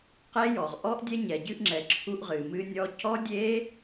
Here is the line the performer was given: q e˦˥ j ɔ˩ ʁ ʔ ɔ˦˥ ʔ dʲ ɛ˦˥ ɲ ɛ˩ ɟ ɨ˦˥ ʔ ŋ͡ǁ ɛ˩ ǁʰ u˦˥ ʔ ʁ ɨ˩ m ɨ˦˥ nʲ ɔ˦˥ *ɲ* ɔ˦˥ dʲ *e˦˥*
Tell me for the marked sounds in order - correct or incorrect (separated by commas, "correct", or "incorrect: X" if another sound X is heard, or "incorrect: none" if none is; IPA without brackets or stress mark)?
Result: incorrect: c, correct